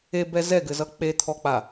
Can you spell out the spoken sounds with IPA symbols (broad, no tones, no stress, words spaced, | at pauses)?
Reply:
ebɛ zɛɡɘzʌ k͡pet̪ʰɔk͡pa